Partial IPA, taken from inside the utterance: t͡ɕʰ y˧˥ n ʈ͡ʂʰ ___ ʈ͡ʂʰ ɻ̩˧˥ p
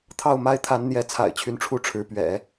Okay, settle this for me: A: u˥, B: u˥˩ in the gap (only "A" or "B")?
B